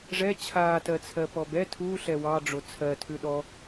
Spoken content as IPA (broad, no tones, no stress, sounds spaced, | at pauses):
ʐ ɛ t͡ɕʰ aː t ɜ t͡sʰ ɜ p ɔ b ɛ tʰ uː ɬ ɛ w ɑ ɖ͡ʐ o t͡sʰ ɜ tʰ ʉ ɗ ɔ